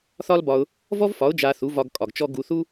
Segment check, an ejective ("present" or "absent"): present